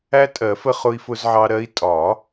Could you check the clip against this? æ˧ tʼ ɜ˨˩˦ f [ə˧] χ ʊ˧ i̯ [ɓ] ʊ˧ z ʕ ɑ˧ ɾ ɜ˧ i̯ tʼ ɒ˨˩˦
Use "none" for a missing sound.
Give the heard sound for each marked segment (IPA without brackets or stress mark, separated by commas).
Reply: ə˧, f